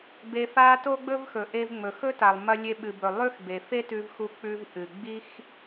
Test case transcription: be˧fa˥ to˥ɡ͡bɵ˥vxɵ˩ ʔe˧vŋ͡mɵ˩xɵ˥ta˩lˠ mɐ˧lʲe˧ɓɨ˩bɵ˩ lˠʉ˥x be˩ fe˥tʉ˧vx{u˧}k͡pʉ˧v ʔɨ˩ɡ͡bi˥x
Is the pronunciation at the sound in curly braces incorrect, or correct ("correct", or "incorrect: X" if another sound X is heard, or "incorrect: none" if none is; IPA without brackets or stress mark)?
correct